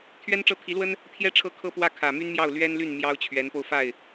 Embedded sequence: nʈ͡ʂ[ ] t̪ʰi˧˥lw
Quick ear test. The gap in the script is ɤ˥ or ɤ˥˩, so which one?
ɤ˥˩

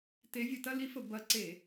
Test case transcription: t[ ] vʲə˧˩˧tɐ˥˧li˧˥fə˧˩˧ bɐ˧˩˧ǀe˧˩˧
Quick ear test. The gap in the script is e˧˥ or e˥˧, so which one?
e˧˥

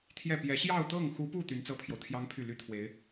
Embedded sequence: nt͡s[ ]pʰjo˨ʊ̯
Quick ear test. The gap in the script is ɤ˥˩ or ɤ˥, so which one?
ɤ˥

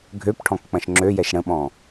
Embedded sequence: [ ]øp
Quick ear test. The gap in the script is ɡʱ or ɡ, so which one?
ɡʱ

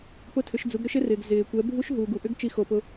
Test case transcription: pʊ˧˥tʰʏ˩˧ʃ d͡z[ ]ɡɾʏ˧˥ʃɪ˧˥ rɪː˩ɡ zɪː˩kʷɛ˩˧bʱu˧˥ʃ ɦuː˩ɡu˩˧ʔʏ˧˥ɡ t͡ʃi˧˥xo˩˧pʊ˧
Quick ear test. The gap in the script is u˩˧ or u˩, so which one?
u˩˧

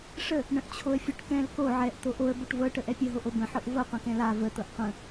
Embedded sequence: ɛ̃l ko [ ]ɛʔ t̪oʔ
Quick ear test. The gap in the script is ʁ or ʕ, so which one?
ʕ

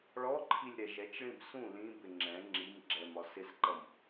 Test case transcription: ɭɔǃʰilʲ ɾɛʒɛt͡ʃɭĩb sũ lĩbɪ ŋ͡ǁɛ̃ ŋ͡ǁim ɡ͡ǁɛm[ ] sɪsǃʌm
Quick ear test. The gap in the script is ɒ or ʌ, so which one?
ɒ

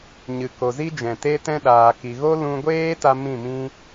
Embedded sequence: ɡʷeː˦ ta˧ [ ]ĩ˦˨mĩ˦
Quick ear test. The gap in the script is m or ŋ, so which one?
m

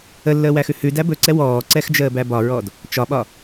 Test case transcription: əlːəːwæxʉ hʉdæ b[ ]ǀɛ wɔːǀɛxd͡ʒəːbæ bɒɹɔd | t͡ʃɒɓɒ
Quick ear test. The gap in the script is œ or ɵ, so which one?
ɵ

